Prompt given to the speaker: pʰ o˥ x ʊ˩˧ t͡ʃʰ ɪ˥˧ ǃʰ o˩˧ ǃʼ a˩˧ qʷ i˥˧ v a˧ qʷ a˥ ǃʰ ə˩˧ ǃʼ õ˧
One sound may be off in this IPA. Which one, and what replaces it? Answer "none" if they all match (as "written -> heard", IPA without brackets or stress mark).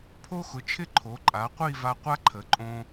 none